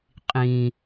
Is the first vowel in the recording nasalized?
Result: yes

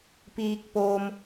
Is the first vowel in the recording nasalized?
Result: no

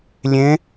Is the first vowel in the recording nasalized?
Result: yes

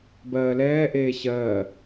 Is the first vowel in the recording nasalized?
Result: no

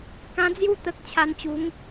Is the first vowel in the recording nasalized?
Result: yes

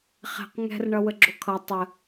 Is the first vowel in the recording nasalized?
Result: no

